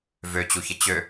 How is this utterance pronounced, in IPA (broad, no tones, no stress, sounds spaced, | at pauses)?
v ø t͡ɕ u ç ə t͡ɕ ø